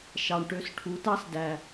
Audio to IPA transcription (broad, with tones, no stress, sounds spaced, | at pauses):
ʃ ɑ˨ ɳ ʈ ø˧ s ʈʰ u˨˦ t ɑ˦ s d æ˨